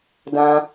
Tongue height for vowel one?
low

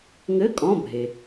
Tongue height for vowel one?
mid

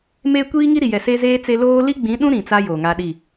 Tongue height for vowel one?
mid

